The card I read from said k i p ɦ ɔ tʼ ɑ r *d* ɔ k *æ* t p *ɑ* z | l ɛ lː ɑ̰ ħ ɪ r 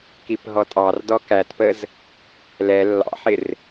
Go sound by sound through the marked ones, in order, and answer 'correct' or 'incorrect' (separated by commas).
correct, correct, incorrect